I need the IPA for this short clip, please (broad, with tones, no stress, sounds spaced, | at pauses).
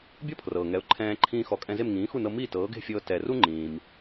bʲ ɔ˥ pʰ r ɤː˩ ŋ ɛ˩˥ ʊ̯ ǃʰ ɛ̃ː˧ ǃʰ ĩː˧ x ɔ˩˥ kʼ ɛ̃˧ z e˥˩ m ŋ ĩː˩˥ x u˥˩ n ɤ˧ m iː˥˩ t ɤː˩˥ ɡ e̤˥˩ fʲ ɤː˧ t ɛ˩ r u˥ ŋ͡ǃ ĩː˩ m